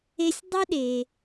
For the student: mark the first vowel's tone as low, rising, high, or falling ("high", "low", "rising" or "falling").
high